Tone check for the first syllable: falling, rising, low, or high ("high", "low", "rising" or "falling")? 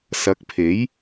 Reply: rising